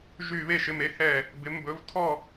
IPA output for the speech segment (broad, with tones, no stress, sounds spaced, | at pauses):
ʒ y˦˨ β e˦˨ ʃ ɪ˨˦ m e˨˦ h ɛ˦˨ | b ɪ˨˦ m b ɵ˨˦ v tʰ ɔ˦˨